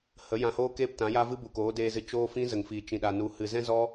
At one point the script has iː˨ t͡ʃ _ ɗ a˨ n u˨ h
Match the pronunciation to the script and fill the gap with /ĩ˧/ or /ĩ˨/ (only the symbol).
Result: ĩ˨